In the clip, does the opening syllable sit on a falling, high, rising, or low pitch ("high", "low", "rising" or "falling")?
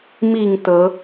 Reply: falling